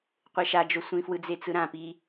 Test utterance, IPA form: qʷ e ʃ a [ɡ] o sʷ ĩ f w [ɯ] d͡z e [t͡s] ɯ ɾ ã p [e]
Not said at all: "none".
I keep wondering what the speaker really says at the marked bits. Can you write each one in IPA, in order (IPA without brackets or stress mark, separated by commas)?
d͡ʒ, ɯ, t͡s, i